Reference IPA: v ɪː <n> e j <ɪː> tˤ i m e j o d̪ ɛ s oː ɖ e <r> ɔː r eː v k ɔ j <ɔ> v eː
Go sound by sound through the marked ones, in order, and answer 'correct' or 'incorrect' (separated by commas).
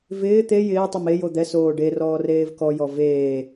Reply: incorrect, correct, correct, correct